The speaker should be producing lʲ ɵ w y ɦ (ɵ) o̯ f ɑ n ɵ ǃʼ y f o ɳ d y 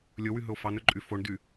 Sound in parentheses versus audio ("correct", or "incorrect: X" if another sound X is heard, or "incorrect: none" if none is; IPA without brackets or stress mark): correct